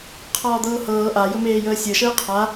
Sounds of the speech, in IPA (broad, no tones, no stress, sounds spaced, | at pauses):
qʰ ɒː d̪ ɤː h ɤː ʔ a j ɵ m eː j əː sʲ ɤ ʃ əː qʰ a